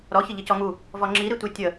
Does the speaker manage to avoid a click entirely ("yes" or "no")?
no